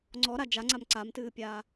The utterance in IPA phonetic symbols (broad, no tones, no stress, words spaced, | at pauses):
ŋ͡ǀɔɾa d͡ʒaŋ͡ǀam ǀamtɨːpʲaː